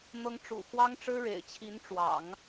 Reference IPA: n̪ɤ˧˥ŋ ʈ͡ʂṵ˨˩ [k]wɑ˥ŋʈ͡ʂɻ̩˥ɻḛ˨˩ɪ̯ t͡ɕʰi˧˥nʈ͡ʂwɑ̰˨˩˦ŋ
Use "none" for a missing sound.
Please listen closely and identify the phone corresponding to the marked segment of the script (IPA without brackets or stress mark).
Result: x